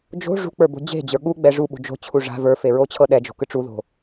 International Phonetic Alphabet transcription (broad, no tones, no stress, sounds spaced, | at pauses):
d͡ʒ o̤ ʐ ṳ k͡p ə˞ b o̤ d͡ʑ e̤ d͡ʑ ə˞ ɠ u ɡ͡b ɛ ʐ u ɓ ṳ d͡ʒ o̤ t͡ɕʰ u ʐ a̤ v ə˞ f e ɹ o t͡ɕʰ ɤ ɗ ɛ d͡ʒ o̤ k ɯ ʈ͡ʂ u ð o̤